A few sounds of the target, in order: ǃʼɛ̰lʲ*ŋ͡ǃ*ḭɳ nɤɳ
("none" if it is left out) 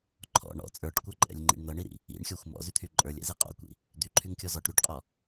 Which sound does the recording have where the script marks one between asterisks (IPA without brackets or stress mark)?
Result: ŋ͡ǃ